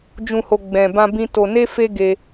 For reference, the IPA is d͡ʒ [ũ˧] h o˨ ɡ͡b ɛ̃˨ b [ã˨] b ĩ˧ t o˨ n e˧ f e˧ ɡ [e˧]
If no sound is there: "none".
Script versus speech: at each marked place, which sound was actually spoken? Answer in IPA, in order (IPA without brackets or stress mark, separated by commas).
ũ˨, ã˧, e˧